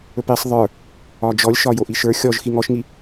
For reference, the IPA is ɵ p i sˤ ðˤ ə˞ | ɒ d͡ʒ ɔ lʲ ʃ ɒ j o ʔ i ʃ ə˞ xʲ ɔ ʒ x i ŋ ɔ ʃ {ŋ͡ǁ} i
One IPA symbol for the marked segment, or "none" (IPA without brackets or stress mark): ŋ